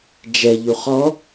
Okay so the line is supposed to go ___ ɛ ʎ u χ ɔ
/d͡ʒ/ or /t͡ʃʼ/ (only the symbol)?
d͡ʒ